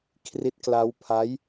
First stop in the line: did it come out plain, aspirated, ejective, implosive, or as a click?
aspirated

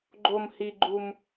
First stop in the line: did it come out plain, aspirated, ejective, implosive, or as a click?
click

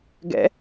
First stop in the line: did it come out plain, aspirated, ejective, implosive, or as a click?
plain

